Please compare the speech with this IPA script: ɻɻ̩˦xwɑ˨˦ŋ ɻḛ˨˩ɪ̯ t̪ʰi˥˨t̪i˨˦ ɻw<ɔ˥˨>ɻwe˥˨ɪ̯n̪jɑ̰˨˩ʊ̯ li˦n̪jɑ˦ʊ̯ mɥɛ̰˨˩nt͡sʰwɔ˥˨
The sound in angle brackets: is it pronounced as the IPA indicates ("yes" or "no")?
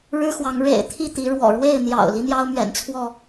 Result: no